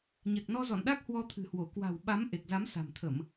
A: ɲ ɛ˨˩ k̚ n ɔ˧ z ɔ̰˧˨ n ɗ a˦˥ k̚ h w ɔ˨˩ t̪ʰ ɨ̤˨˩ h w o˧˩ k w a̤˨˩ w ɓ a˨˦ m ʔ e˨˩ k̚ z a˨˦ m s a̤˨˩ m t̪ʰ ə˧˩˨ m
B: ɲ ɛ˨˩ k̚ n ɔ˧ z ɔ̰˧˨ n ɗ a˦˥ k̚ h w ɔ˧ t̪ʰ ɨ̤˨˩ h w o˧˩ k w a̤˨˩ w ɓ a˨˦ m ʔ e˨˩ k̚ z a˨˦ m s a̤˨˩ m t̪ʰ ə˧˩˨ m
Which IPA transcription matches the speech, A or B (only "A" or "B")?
B